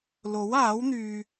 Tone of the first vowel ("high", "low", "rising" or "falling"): rising